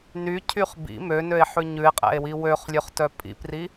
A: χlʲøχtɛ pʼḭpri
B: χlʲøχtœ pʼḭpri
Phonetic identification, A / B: B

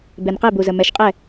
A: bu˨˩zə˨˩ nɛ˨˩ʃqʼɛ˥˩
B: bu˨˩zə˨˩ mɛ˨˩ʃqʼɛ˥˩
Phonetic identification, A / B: B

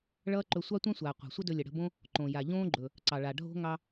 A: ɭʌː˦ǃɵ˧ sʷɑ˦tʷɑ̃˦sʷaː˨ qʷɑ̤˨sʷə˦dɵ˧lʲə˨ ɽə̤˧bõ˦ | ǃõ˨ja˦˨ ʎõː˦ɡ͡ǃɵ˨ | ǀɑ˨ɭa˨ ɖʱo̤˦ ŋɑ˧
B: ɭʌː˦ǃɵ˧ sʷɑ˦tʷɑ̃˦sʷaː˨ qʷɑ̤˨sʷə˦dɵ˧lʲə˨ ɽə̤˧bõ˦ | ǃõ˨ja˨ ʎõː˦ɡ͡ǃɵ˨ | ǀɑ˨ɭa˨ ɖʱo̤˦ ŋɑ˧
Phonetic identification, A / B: B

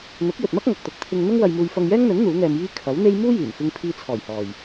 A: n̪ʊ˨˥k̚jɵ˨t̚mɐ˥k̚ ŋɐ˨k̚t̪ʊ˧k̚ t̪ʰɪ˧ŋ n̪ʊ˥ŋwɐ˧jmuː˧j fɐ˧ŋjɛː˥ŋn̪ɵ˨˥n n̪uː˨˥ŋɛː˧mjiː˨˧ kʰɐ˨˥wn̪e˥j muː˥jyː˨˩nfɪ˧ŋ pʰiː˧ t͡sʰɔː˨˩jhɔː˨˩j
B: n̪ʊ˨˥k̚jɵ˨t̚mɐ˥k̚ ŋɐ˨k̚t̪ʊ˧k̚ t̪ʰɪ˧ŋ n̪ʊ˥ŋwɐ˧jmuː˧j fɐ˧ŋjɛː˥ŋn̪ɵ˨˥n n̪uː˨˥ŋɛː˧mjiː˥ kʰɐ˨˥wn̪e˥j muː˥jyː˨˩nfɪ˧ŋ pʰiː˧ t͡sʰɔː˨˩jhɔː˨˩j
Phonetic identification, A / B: B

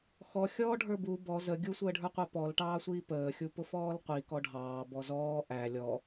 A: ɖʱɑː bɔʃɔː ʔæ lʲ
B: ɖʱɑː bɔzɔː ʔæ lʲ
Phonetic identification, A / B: B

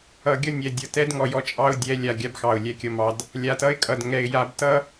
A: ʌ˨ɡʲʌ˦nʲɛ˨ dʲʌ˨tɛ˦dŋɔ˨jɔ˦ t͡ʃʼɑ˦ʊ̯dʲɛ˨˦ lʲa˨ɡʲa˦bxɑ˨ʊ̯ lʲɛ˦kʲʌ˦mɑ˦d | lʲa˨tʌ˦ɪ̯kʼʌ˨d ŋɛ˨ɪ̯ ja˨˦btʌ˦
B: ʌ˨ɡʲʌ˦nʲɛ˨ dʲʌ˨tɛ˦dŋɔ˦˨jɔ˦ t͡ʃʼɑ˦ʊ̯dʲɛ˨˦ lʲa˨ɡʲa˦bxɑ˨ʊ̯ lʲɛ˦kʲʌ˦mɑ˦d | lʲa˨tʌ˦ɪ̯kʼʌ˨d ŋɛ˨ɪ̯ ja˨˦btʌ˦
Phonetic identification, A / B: A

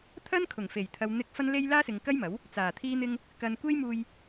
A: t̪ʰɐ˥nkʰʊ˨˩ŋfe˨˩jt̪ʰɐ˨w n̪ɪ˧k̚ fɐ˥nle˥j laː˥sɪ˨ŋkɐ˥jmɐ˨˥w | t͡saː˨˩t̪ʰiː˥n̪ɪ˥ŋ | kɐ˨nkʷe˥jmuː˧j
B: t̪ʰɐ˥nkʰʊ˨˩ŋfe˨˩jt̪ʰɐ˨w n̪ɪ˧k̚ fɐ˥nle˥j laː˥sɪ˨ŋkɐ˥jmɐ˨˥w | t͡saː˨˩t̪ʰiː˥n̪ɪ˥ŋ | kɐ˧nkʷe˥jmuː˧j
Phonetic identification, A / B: A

